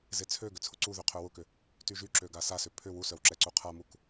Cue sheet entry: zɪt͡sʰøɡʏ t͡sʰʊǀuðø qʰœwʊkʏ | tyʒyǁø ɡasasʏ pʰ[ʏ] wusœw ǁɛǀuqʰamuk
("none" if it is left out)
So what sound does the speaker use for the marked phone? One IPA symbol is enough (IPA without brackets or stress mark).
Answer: ʏ